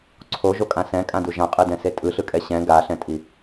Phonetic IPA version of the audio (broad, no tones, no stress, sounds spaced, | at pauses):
ǀʰ o ʒ o kʼ ã s ɛ̃ kʼ ã d u ʒ ã qʼ ɯ d ɛ̃ s e tʼ ɯ ɬ ɯ kʼ ɛ ɕ ɛ̃ ɡ a ɬ ɛ̃ tʼ i